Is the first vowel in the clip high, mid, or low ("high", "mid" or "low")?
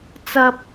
low